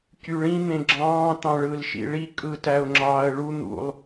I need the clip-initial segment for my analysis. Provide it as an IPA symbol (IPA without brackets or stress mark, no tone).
c